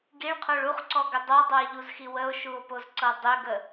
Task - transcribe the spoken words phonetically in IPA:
ɡiɭqʰoɭ uχǀɔɡʏ dˤɤdˤɤe̯ʎuzxi wəo̯ʃuo̯pozǀɤ dˤʏɡə

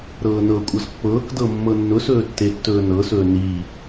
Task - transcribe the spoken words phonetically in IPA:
ɾɤːnɤkʷʼɤz pːɤːkdɤ mːɤnːʊsɵː tːetːɵːnɤsɵː ni

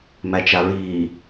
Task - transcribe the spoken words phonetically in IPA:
mæt͡ʃaɹiː

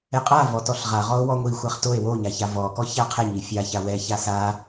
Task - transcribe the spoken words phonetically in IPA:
ɛqʼa vɔtɔɬʁaʁɔo̯ wɔŋʷi xʷaχtoe̯ woɲaça vɔkɔça qʰɛɲi fʲaça wɛ çasa

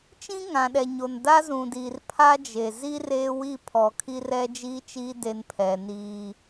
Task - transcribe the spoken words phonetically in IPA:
t͡ʃĩ˦ŋã˨ɗɛ˨ ɲo˨n da˦zũ˨diː˨r pʰa˦d͡ʒe˨ zi˦ reː˦wi˦˨ pʰɔ˨ kʰi˦rɛ˦d͡ʒiː˦t͡ʃiː˦ de˦npʰɛ˨ niː˦

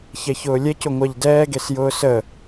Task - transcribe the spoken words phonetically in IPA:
çɛçʊːlʲɛc ʊŋʷaʎdɛː ɡesjʊːsə

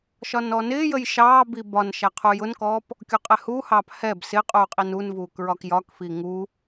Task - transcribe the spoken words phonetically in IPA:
ʃɒnɔnɪːjəj ʃɑːbi bɒn ʃæqʰujʊnkɔːp | kʲɔqʼɛhuhɑːp hɛb sɪqʼuː qʼinunvuːk ɹɒkjɒkfi ŋu

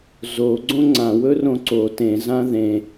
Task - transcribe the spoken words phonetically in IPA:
zo ɡ͡ǀõŋ͡ǀã wɵrõǀo tẽ zãðẽ

